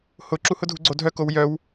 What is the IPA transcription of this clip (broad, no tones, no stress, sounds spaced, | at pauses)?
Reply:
h ʊ ǁ u h ʊ dʱ u ɡ͡ǀ o dʱ œ k o w j œ w